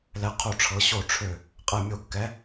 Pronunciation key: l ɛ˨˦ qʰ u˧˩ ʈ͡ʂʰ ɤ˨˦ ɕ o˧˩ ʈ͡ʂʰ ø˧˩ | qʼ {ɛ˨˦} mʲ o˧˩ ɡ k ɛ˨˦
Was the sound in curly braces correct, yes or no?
no